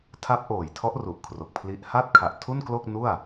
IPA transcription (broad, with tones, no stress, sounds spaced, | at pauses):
tʰ a˦˥ p̚ ʔ oː˨˩ j tʰ ɔ˦˥ ʔ r u˨˩ ʔ kʰ r o˨˩ k̚ pʰ l i˦˥ ʔ h a˥˩ t̚ kʰ a˨˩ ʔ tʰ u˥˩ n k l o˥˩ k̚ n u˥˩ a̯